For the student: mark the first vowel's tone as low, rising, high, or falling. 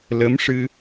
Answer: rising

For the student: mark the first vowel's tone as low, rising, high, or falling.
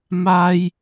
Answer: high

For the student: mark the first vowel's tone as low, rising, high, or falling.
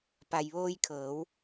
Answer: low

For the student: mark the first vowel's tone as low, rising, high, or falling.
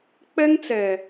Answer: high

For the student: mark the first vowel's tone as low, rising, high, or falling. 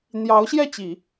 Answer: rising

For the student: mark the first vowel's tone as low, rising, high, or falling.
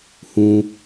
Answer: high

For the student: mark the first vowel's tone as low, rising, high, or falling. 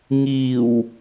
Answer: low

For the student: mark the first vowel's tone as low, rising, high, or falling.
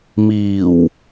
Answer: low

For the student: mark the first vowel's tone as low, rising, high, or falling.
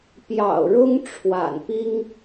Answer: low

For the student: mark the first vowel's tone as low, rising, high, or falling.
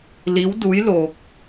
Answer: rising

